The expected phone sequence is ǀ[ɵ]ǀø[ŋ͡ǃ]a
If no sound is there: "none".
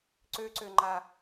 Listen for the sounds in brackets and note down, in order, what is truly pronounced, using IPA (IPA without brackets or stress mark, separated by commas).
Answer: ø, ŋ͡ǃ